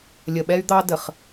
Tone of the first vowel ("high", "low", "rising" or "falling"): low